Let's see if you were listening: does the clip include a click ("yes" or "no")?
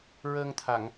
no